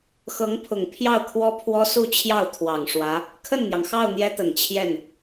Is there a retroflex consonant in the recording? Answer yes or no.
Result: yes